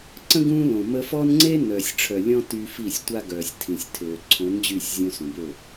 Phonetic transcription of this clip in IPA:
ǀ ə̃˦ ɡ ũː˦ l õ˨ m ə˦ f ɔ˦ n ŋ͡ǀ e˦ n œː˨ sʲ ʈ͡ʂʰ œ˨ lʲ ɔ̃˦ t y˦ f i˦˨ sʲ tʷ a˦ ɡ œː˨ sʲ tʰ ĩ˨ sʲ tʰ øː˨ ǀʰ õ˨˦ n d͡ʑ y˦˨ sʲ zʲ õ˦ s ũ˨ b ø˦˨

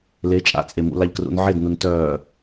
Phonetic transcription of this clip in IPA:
l e t͡ʃʼ a̰ t͡sʼ e m ṵ l a ʎ k r ṵ n ʕ e d n u n t œː

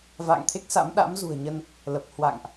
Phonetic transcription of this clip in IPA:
v a̰ː˧˨ ŋ t̪ʰ e˦˥ k̚ s a̰˧˥ m ɗ a̰˧˥ m z ṳ˨˩ ə̯ ɲ ə˧ n | l ə˨˩ p̚ h w a̰˧˨ ŋ ʔ

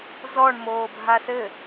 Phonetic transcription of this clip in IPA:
z ɔ ɳ m oː bʱ a s ɘ

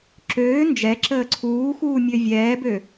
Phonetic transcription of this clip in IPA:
ǁ øː n d͡ʒ ɛ ǁ əː ǀʰ uː x uː mʲ ø vʲ ɛː b ø

